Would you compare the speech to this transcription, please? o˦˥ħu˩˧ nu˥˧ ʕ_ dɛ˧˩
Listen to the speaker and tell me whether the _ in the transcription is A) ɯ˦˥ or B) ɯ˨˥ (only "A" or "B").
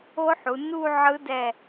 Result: A